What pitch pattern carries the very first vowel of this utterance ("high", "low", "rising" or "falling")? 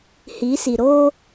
rising